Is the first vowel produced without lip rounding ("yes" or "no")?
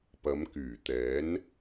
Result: yes